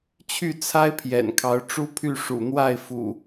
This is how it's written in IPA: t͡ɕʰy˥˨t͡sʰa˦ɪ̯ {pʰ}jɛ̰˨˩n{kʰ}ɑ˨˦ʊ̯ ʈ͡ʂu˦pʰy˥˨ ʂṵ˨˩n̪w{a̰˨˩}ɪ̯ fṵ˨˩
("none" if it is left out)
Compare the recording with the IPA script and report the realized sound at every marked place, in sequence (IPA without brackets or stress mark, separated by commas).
pʰ, kʰ, a˥˨